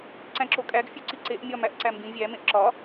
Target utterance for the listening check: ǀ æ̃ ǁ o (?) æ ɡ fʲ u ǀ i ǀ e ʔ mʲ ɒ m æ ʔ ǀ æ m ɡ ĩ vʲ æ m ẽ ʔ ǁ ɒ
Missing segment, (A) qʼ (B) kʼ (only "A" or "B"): B